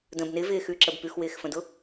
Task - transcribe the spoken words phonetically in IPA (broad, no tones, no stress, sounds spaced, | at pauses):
d ə̃ b n ɪ v ɪː x ʉ ǁ ə b p ʉ x w ɪː x f ə̃ d ʊ